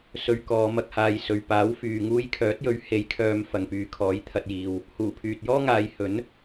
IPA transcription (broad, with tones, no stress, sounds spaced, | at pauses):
s ɵ˧ ɥ k ɔː˨˧ m ɐ˧ k̚ h aː˨ j s ɵ˨ ɥ p aː˨˥ w f yː˨ ŋ uː˧ j kʰ œː˨˥ t̚ j ɵ˨˥ ɥ h e˨˥ j kʰ œː˨˧ m f ɐ˨ ŋ p yː˨ kʰ ɔː˨˥ j t̪ʰ ɐ˨ t̚ j iː˨ w | h uː˨˩ pʰ yː˨ t̚ j ɔː˥ ŋ aː˨˧ j h ɵ˨˥ n